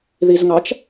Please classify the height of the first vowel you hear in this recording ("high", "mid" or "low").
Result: high